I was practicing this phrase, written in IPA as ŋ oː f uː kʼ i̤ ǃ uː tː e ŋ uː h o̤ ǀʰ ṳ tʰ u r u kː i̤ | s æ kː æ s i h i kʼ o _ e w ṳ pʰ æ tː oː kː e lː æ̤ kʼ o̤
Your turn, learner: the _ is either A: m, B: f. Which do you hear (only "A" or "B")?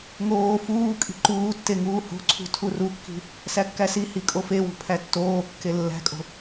B